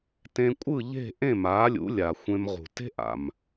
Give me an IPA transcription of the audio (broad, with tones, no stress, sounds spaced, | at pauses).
t ẽ˧ kʷʼ ɯ˥˩ ʎ e̤˥˩ ʔ ẽ˥˩ m aː˩˥ lʲ ṵ˩˥ lʲ a˩ xʷ ẽ˧ m ʁ ṳ˩ t e̤˥ ʔ a̰˩ m